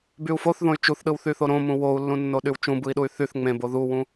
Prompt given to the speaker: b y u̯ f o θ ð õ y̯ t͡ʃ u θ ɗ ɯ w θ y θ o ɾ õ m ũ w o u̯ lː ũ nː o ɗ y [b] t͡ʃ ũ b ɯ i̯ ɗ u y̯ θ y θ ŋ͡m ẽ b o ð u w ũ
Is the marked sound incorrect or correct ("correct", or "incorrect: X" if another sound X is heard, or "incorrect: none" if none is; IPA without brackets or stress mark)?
incorrect: w